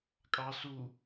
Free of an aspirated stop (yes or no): yes